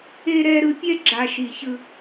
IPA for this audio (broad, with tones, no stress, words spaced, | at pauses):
e˨ɾɛ˨ ɾɯ˨pʲɛ˦ ɡ͡ǁa˨ʃi˨çɯ˦